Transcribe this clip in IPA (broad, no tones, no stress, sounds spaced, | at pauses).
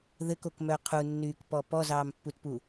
ð ɘ k o k m œ qʰ u nː yː k p ɔ p ɔ z ɑː m pː u t p u